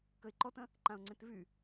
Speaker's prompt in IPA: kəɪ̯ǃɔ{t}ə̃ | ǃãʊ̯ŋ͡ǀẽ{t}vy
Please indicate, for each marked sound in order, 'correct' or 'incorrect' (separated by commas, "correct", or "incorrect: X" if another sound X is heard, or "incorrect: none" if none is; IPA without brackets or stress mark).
correct, correct